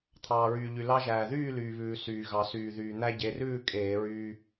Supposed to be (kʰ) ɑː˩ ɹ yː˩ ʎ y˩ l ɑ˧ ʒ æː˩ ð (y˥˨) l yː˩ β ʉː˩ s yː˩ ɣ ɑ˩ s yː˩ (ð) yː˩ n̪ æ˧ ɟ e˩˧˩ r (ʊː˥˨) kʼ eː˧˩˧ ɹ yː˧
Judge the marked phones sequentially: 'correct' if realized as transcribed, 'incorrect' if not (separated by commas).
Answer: incorrect, incorrect, correct, incorrect